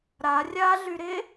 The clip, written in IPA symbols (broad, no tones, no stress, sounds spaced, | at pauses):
ɾ a rʲ a ɮ y ɾ e